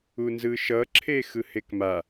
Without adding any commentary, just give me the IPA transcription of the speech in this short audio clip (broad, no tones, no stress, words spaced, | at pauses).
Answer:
unzɯʃʌǁʰe xɯhekma